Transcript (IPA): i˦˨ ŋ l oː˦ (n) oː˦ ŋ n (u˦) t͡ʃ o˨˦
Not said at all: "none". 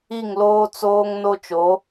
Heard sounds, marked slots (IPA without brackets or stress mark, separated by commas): t͡s, o˦